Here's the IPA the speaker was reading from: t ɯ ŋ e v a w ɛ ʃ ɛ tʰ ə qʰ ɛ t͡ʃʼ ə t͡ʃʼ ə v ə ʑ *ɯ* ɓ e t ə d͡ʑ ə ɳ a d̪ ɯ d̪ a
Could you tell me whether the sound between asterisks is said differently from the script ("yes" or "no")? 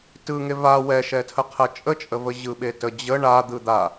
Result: no